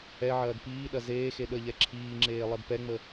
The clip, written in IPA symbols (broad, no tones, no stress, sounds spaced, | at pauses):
ɛ ʕ ɐː d p iː ɗ ɐ z eː x e ɗ ə ʎ ɛ ǁʰ iː ŋ͡ǁ eː lˠ ɛ d p ɛ ŋ͡m ə